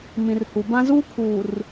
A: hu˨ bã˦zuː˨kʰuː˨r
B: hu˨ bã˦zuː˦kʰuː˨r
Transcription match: B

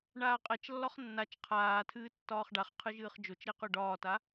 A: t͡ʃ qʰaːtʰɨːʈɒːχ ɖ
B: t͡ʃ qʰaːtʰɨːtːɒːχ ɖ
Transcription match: B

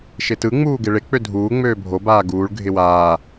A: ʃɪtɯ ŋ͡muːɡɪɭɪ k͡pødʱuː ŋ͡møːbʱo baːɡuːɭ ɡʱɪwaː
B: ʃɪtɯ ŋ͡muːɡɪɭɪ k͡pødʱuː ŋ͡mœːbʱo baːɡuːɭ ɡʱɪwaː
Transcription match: A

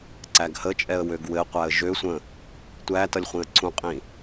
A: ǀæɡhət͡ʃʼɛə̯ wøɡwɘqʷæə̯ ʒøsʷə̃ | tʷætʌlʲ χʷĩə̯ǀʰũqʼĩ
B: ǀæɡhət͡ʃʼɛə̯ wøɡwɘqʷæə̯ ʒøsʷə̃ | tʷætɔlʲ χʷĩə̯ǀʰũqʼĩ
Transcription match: A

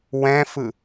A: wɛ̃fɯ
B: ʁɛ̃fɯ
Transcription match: A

